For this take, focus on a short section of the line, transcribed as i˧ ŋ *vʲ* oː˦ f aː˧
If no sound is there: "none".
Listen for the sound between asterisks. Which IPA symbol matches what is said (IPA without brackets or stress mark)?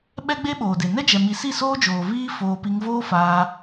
v